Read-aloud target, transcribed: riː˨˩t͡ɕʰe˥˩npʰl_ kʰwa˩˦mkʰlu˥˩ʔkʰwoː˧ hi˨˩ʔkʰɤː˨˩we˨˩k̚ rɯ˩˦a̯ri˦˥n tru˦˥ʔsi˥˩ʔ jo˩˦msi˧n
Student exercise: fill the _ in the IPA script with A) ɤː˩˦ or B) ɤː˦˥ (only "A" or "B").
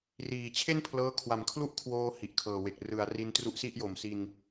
B